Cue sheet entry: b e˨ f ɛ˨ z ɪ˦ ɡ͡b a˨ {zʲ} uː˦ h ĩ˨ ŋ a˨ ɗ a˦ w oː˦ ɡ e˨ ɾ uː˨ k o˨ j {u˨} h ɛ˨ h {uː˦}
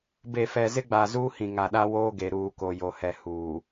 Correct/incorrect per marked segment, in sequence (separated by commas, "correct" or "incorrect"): incorrect, incorrect, incorrect